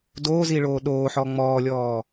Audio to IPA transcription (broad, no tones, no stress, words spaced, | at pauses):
doːziɭoː ɗoːħɔ ŋ͡mɔːlʲɔː